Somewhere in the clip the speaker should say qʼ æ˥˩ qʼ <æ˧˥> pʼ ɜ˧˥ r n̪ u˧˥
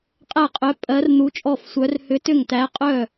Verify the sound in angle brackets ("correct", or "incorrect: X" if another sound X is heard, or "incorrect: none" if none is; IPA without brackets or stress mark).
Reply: incorrect: œ˧˥